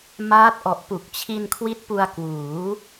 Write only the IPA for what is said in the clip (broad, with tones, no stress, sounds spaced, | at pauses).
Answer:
m aː˦˥ t̚ ʔ ɔ˨˩ ʔ p u˨˩ k̚ t͡ɕʰ i˧ n kʰ w i˦˥ t̚ p u˧ a̯ k w uː˩˦